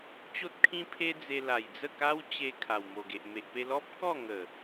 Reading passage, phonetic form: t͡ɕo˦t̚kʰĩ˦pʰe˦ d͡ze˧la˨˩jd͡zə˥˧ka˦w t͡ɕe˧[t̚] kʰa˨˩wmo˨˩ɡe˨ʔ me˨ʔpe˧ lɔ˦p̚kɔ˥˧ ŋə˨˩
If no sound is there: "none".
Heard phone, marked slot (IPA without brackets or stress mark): none